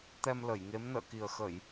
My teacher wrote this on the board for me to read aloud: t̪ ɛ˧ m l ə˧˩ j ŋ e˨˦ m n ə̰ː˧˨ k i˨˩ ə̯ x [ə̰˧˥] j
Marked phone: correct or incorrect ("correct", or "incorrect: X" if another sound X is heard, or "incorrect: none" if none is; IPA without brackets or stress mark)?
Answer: incorrect: ə˧˩˨